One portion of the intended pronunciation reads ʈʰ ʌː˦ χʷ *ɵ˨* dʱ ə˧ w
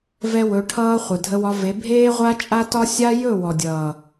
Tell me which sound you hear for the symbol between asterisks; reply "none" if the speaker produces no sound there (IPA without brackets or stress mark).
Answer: ə˨